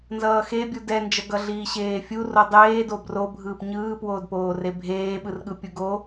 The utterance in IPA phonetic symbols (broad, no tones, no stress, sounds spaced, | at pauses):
n z ʌː x e bʲ u d ɛ n d͡ʒ ʌ ɡ ʌ ɮ iː ɕ eː fʲ u r o dˤ eː d o b r o bʱ ɯː p ɲ ɯː p w oː d p oː r e bʱ eː ɓ ɯ r ɠ ɯ pʲ u ɡ o